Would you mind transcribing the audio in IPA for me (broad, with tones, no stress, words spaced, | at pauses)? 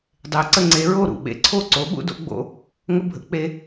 dˤe˨˥ǀə˦ ŋ͡ǀe˨˥ɹo˥˩ ɾṵ˧˩ɓḛ˧˩ǀʰo˥˩ ǀo˨˥ɓṵ˦do̰˦ɡ͡bo̰˨˥ | ŋə˦bʱə̰˦k͡pe˦